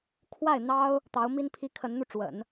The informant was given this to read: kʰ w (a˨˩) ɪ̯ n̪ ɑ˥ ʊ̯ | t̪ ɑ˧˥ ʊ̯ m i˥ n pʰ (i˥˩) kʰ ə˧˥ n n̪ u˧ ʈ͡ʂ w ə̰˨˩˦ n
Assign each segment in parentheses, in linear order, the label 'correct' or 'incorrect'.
incorrect, incorrect

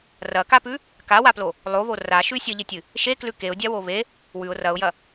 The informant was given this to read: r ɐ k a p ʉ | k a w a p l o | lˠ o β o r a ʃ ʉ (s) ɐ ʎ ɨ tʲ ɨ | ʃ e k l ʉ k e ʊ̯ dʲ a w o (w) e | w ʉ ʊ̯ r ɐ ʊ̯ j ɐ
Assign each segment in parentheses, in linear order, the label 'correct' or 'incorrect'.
incorrect, incorrect

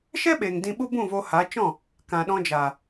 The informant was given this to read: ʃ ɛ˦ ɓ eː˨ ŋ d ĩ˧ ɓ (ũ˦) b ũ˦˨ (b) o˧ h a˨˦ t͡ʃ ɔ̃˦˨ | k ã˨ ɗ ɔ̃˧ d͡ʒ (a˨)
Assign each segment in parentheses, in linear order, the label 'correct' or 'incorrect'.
incorrect, incorrect, correct

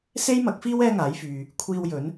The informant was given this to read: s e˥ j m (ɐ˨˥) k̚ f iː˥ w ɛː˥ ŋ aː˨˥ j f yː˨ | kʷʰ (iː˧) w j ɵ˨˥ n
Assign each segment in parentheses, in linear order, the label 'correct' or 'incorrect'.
correct, correct

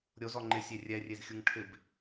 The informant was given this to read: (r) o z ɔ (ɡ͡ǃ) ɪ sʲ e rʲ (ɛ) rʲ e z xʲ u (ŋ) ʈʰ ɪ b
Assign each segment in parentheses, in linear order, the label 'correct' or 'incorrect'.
incorrect, incorrect, correct, correct

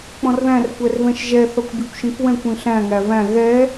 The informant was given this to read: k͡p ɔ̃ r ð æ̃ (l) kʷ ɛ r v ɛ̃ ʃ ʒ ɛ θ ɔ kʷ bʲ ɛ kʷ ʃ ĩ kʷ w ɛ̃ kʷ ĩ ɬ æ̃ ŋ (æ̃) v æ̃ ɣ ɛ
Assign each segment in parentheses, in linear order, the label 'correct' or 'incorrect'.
incorrect, incorrect

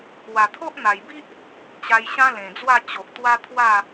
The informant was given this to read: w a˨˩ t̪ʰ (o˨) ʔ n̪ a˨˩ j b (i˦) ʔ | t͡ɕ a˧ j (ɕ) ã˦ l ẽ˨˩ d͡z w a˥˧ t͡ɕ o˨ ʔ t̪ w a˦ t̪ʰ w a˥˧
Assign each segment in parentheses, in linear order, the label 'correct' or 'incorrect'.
incorrect, correct, correct

